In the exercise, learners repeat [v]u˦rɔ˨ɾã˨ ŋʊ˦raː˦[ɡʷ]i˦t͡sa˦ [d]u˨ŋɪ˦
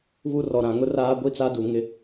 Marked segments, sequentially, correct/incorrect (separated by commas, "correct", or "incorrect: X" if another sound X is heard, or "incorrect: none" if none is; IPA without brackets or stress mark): incorrect: β, correct, correct